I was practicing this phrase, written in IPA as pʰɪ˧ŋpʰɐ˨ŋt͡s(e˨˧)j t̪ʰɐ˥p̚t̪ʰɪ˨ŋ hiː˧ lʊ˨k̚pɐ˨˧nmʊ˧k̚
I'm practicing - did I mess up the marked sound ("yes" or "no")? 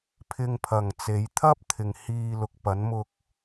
no